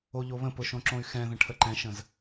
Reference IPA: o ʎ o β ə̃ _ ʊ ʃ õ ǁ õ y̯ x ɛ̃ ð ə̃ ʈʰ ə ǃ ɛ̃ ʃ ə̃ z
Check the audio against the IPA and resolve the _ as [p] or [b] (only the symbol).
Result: p